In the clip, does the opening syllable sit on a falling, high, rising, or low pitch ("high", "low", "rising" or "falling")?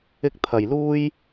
high